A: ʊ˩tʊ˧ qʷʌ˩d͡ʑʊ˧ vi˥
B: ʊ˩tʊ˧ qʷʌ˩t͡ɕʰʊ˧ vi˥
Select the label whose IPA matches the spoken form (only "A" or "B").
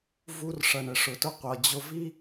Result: A